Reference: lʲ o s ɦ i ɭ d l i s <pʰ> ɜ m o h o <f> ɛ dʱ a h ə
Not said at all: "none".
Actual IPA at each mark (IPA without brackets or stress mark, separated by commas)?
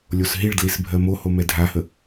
bʱ, m